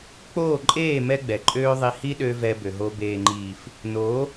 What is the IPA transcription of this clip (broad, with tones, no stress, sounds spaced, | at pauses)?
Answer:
k͡p oː˦˨ ǃʼ eː˦˨ m ɛ˦ ɡ͡b ɛ˨ ǃʼ øː˦ ðˤ i˧ h i˦ ɗ ø˧ v ɛ˧ b ø˨ ɦ o˧ b eː˨ ŋ͡ǃ iː˨ f | n oː˨˦